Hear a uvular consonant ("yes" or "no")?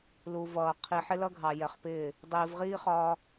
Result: yes